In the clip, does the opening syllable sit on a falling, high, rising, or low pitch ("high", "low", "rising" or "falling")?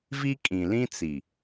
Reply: high